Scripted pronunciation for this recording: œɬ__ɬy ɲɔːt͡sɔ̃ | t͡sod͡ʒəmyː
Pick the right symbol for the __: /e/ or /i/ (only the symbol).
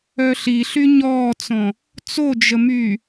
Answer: i